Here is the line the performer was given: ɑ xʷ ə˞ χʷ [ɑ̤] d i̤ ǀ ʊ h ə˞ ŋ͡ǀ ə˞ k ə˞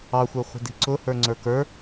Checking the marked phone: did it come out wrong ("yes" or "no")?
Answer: yes